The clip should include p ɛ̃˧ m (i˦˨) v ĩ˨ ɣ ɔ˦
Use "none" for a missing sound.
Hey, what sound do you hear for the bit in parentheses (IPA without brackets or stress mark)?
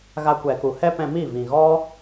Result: i˦˨